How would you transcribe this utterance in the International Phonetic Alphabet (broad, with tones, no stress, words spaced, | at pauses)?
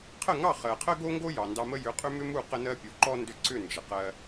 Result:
qʰə˥˩ŋɑ˥˩ χɜ˩qʰə˥ɡo˥ŋɡo˥ jɑ˩ndɑ˧mə˥ jʏ˩˥qʼʏ˥mʏ˥mu˥˩ qə˥nɜ˥ pʲu˩ǃɔ˥ ndʏ˧ǀʏ˥˩ nd͡ʒə˩qɜ˧